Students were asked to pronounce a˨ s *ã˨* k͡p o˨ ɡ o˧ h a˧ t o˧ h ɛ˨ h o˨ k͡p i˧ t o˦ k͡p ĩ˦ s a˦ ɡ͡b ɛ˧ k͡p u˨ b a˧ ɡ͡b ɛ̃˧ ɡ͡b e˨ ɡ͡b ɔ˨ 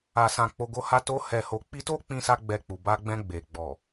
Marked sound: correct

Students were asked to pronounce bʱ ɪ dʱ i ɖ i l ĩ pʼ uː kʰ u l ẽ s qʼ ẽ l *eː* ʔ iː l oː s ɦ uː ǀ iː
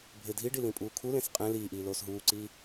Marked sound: incorrect: iː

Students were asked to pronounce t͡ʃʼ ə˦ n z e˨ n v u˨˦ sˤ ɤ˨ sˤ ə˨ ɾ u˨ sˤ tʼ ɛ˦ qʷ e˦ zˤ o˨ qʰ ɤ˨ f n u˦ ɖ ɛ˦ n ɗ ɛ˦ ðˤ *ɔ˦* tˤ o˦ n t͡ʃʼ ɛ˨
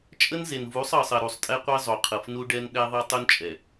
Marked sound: incorrect: ɤ˦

